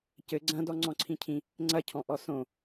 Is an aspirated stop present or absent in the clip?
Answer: present